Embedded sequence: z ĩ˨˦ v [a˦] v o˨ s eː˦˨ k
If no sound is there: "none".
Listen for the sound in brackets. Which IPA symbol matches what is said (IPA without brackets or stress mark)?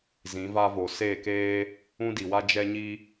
a˦